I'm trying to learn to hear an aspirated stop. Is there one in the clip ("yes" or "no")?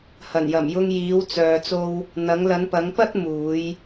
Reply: no